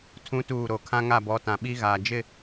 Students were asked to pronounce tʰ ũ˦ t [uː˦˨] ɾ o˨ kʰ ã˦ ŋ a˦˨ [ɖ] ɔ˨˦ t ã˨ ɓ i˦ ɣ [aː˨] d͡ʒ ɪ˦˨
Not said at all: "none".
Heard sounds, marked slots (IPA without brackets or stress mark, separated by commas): uː˦˨, b, aː˨